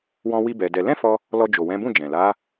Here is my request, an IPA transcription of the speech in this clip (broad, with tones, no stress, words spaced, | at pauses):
wɔ̃˧ wi˦bɛ˧dɛ˧ lɛ̃˦fɔ˧ | lɔ˧d͡ʒo˨wɛ̃˨˦bũ˦˨ d͡ʒɛ̃˨ la˨˦